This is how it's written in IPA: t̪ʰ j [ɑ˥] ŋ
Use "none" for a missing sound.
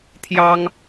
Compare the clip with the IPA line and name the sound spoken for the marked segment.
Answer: ɑ˥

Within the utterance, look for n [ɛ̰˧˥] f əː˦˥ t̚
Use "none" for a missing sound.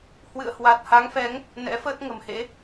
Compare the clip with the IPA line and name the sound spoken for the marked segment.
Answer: ɛ̰˧˥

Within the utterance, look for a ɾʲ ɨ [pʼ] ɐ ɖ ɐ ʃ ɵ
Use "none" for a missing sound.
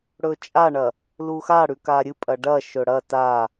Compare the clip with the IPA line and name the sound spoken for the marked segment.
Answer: pʼ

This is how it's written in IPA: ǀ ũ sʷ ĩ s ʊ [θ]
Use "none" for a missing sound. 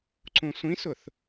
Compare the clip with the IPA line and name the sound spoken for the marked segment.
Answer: θ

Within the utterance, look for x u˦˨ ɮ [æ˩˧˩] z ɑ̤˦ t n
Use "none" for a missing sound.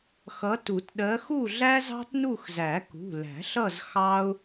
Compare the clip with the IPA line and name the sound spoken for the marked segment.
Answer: æ˦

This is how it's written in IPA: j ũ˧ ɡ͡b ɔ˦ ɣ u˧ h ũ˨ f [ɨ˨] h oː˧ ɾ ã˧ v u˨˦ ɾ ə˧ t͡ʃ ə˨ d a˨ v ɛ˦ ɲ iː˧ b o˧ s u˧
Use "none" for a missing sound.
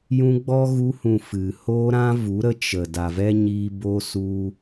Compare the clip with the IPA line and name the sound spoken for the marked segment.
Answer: ɨ˨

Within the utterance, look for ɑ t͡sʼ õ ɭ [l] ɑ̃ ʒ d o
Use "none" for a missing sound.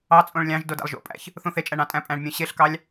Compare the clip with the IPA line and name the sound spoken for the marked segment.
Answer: lʲ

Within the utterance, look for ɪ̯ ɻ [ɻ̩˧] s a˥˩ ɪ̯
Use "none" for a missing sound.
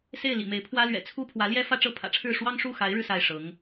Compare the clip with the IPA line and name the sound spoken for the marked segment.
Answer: ɻ̩˧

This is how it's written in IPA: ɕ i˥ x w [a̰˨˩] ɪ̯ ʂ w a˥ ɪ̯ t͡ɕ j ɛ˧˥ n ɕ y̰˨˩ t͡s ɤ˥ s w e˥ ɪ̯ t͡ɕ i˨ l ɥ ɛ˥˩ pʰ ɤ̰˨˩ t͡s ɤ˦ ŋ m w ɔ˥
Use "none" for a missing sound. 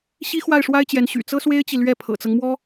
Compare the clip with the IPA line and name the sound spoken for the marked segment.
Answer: a˥˩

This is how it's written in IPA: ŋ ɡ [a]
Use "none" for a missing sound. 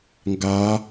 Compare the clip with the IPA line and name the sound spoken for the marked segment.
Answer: a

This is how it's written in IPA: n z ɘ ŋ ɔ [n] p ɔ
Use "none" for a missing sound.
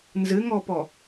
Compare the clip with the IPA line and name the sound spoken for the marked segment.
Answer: none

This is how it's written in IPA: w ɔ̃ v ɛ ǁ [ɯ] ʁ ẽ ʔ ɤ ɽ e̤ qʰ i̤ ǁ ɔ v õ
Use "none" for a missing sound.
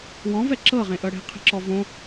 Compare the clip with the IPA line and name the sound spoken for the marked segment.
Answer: ɤ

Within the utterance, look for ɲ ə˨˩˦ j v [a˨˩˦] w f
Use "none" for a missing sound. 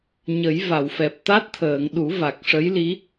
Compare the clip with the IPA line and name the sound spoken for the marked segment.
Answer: a˨˩˨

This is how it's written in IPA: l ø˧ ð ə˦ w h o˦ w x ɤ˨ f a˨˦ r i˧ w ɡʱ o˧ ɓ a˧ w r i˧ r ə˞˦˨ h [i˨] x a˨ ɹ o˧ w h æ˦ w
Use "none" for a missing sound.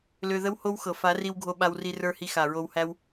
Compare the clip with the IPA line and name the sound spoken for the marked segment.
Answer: i˧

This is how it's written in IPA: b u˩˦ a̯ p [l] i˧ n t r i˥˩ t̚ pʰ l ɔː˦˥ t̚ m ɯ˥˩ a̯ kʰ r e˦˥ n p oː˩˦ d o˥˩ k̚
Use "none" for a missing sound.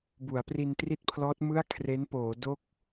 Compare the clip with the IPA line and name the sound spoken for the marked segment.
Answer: r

